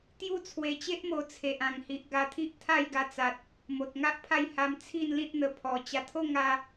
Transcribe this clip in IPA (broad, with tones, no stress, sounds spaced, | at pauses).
t̪ j u˦ t͡sʰ w e˧ t͡ɕ e˦ ʔ m o˧ t͡sʰ e˨ ʔ ã˨˩ ŋ h i˨ ʔ ɡ a˧ t̪ʰ i˦ ʔ t̪ʰ a˥˧ j ɡ a˧ t͡s a˨ t̚ | m o˨ t̚ ŋ a˦ ʔ pʰ a˥˧ j h a˧ m t͡sʰ i˥˧ n l ĩ˦ t̚ n̪ ə˧ pʰ ɔ˧ t͡ɕ a˧ t̪ʰ o˥˧ ŋ a˦